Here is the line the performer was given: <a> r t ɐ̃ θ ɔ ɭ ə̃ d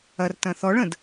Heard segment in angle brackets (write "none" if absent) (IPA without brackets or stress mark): ɐ